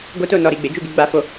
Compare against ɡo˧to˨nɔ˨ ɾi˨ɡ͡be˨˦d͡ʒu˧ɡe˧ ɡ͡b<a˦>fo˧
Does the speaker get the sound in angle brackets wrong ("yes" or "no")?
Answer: yes